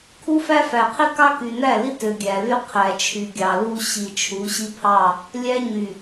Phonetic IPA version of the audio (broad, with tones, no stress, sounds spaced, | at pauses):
kʰ u˦ f æ˦ f æ˨ qʰ i˦ k ɑ˦ k y˨ n æ˦˨ l i˦ t ø˨ ɡʲ æ˨ l y˦ qʰ æ˨ t͡ʃʰ y˨ ɡʲ ɑ˨ l u˦ ɕ i˨ t͡ʃʰ u˨˦ ɕ i˦ pʰ ɑ˦˨ | lʲ æ˦ ɲ y˨